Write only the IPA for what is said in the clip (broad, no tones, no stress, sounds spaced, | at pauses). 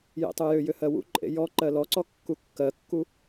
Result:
j ḛ tˤ u j ʏ j ʏ h ɜ w ṵ ǃʼ ḛ j ɔ ǃ ɜ l ɔ ǀ ɔ kː u kː ɜ kː u